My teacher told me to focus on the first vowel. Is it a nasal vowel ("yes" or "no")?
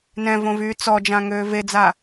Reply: yes